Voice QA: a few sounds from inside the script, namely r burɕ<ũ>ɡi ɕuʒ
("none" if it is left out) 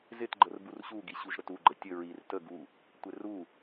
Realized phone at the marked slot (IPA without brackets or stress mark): u